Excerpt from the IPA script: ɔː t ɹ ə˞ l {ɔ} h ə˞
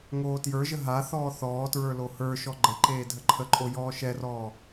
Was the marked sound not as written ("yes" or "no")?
yes